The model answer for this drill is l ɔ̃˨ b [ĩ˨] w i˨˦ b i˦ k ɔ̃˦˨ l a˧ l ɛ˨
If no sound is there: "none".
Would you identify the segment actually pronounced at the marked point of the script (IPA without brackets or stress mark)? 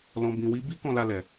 ĩ˨